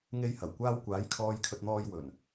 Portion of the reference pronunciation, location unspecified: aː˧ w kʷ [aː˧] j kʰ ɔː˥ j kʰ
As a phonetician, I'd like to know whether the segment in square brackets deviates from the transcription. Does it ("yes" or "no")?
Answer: yes